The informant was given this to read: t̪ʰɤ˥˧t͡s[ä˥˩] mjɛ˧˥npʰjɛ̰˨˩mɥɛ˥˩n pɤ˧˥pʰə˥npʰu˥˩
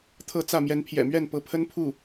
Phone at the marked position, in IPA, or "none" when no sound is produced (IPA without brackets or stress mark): ä˥˩